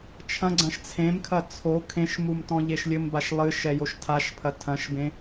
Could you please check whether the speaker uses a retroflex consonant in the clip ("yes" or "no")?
no